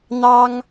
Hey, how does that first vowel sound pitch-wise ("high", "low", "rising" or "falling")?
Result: high